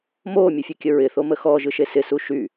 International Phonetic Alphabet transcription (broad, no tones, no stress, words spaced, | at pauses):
moːmʲɯfʲɯkʲə ɹɪθomə xɔʒɯʃe sɪsu ʃy